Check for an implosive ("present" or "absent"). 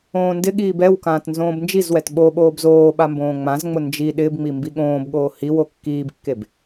present